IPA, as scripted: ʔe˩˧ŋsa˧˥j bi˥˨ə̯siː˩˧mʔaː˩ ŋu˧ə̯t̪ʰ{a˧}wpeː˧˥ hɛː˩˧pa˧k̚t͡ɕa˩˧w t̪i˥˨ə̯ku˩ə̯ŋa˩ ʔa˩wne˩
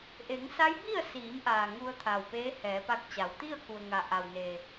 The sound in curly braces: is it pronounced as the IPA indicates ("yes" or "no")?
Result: no